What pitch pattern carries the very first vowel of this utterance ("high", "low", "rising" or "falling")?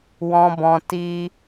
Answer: high